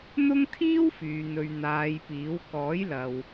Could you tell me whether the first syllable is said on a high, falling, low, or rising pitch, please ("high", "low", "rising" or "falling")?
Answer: high